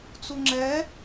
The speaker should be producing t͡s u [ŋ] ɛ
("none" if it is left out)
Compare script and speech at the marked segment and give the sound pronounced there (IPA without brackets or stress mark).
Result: ŋ͡ǁ